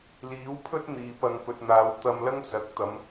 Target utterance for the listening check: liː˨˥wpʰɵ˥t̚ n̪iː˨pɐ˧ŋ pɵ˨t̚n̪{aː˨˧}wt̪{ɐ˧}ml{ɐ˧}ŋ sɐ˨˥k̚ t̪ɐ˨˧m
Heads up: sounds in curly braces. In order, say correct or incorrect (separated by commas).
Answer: correct, correct, incorrect